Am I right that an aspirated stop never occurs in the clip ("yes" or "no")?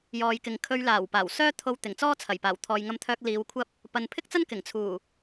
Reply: no